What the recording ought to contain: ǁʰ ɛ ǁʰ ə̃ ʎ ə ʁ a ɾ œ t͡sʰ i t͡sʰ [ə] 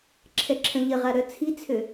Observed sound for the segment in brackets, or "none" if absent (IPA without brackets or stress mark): ø